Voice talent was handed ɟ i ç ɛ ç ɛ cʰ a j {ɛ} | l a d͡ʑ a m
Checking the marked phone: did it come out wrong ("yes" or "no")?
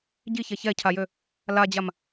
yes